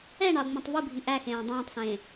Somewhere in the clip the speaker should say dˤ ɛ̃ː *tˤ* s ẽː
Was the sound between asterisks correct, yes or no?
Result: yes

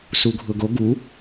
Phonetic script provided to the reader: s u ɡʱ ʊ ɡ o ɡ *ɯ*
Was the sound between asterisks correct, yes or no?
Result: no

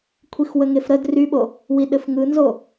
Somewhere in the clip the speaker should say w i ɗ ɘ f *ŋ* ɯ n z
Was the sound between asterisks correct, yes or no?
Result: yes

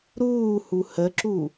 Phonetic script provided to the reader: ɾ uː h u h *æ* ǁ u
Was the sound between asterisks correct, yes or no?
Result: no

